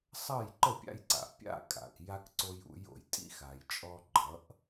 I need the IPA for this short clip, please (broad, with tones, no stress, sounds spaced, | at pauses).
sˤ ʌ˥˩ j ǃ ə˥˩ pʲ a̰˧ j ǀ a̰˩ pʲ a̰˥˩ kʼ a̰˩ k j a˧ k ǀ o˧ j ṵ˩˥ j o̰˩ j tʼ ḭ˧ x a˩ j t͡ʃʼ ɔ˧ ɡ͡ǃ ʌ˩˥ ʔ